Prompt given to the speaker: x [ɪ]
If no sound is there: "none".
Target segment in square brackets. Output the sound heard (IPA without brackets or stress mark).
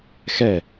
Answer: ɛ